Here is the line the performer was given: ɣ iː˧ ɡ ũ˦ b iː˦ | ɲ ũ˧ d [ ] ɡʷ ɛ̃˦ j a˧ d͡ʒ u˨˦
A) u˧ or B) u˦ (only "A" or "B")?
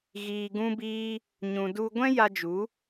B